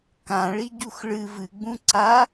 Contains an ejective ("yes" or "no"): no